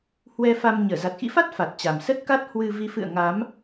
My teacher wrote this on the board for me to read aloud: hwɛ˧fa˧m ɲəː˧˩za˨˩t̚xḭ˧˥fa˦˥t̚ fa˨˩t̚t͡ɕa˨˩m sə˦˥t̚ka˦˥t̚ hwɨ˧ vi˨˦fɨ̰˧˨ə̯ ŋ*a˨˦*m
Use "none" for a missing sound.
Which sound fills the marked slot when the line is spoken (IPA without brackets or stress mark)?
a˨˦